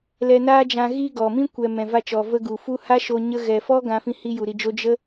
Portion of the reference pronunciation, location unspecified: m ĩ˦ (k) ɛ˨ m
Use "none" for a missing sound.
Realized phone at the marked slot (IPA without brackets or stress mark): kʷ